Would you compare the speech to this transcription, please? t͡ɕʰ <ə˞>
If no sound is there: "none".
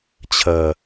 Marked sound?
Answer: ɐ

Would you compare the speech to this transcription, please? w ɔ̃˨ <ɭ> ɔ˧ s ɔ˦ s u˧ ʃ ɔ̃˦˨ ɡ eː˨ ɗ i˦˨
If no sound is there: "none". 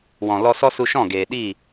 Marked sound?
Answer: l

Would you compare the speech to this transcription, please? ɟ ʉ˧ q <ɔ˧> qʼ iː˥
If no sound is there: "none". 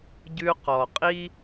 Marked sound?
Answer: ɔ˩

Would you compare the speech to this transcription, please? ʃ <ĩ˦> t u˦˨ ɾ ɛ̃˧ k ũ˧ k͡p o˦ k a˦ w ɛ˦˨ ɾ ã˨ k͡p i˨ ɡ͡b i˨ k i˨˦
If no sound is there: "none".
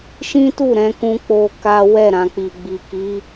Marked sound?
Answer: ĩ˦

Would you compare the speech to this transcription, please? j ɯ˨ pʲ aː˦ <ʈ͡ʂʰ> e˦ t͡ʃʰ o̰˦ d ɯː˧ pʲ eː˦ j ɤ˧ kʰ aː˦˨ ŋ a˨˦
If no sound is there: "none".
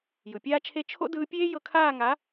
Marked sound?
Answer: t͡ʃʰ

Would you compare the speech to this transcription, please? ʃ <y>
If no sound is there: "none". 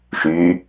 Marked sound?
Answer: y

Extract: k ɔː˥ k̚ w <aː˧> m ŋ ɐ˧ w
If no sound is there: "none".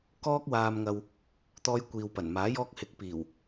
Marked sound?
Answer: aː˧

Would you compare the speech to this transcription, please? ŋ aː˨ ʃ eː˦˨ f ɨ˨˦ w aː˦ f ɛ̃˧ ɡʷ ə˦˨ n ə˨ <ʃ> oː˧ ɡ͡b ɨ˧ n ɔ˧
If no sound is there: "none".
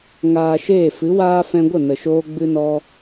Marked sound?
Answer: ʃ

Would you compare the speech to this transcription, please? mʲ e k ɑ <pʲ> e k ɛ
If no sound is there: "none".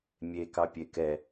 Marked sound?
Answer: pʲ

